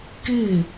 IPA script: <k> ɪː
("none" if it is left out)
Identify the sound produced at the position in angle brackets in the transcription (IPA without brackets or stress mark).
k